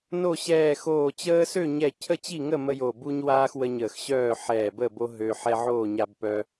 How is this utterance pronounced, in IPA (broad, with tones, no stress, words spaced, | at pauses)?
no˥˨ ɕɛː˧˩xoː˧˩ t͡ɕəː˦sø˥˨ ɲɛ˥˨ cʰə˥˨t͡ɕi˥˨ŋə˥˨ mə˦jo˧˩ bu˦ɲ waː˦x wə˦ɲəː˧˩xɕœː˥˨ ħɛː˧˩bə˥˨bo˦ ɦø˦ ħɛ˦ʕoː˥˨ɲa˦b pœ˦